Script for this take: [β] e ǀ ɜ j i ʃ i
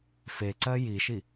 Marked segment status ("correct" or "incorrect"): incorrect